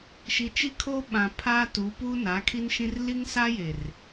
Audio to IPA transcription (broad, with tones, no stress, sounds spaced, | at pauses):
ʃ i˨ t͡ʃ i˦ kʰ oː˦ ɓ ã˨ pʰ aː˦ t u˨˦ p uː˦ n a˨˦ kʰ i˦ n ʃ ĩ˦ r l i˦ ŋ s aː˦ j e˨ r